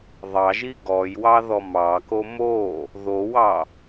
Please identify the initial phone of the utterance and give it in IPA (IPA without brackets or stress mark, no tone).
ðˤ